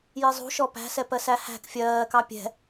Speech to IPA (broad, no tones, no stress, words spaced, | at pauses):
jizˤṳʃɔ pæ̤sɛ pɜsæhæ̤k fʲɜːkɑ pʲɛ̤